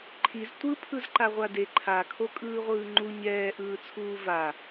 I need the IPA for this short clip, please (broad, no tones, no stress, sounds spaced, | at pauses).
ǃʰ i z tʷ ɯ pʰ ɯ z ǃ a ʁʷ a d e ǃʰ a kʰ o kʼ ɯː ʁʷ ɯː ŋ͡ǃ u ɲ ɛː ʔ ɯː t͡sʰ uː v a